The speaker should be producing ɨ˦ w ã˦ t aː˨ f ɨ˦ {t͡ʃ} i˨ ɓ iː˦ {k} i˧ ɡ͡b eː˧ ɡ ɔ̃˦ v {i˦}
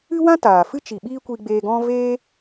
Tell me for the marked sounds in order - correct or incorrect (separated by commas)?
correct, incorrect, incorrect